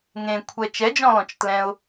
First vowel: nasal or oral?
nasal